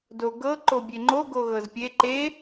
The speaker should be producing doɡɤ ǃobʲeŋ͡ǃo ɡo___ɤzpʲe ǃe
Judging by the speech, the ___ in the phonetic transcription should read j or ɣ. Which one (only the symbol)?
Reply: ɣ